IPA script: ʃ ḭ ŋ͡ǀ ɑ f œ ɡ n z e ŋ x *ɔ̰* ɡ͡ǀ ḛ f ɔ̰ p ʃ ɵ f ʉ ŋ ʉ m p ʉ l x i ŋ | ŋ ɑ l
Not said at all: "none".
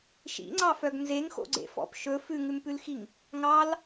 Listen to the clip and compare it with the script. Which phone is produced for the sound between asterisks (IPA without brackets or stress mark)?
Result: o̰